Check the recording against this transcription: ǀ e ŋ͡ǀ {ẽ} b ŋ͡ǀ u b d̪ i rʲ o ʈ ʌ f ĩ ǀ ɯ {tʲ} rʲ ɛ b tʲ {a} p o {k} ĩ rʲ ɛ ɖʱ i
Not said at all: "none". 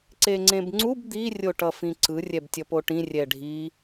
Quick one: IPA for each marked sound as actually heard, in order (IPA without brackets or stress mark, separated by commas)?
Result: ẽ, none, ʌ, ʈ